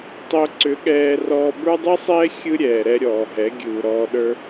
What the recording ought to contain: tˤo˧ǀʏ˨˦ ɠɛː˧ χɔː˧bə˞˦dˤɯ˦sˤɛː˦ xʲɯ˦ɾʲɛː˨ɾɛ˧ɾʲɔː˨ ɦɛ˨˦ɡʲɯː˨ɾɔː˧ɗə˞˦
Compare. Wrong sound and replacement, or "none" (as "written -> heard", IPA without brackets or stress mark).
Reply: χ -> r